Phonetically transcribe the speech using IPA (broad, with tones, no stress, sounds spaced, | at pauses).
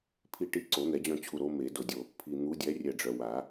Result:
pʰ i˦˨ ʈ i˦˨ ǀ o˨˩˦ n̪ ɛ˨˩˦ d͡ʑ œ̃˦˨ t͡ɕʰ u˨ ɾ o˨˦ m e˨˩˦ d o˨ dʲ o˨ | pʰ i˨ n̪ u˨˦ dʲ ɛ˨˦ rʲ ɛ˦˨ ɖ͡ʐ œ˨ w a˨˩˦